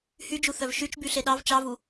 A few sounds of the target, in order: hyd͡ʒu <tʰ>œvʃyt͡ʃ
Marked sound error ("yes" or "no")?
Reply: yes